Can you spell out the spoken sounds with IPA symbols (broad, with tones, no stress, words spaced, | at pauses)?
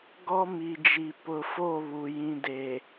ɡɔ˦mi˨d͡ʒi˨ pʊ˨ fo˦˨βu˨ jĩ˨de˨